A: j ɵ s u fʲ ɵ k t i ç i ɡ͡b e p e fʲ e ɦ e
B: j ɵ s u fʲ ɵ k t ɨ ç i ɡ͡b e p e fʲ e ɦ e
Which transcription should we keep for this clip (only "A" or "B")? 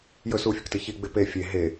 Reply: B